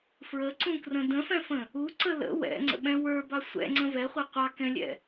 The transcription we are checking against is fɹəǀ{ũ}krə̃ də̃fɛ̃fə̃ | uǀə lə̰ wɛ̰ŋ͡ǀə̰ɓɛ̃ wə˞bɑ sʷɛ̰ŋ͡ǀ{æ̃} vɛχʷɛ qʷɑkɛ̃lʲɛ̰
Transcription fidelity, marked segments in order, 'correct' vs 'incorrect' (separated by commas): correct, incorrect